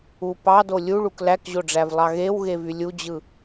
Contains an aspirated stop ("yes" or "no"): no